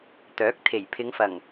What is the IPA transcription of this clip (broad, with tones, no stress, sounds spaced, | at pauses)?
t̪ œː˨˥ k̚ t̪ʰ e˨˩ j pʰ ɪ˨˧ ŋ f ɐ˨˩ ŋ